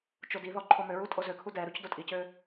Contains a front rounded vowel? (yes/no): yes